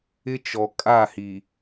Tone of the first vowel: high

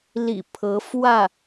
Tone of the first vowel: low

